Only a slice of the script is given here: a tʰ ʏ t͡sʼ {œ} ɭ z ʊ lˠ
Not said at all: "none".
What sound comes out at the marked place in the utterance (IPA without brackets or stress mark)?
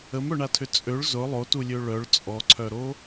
ø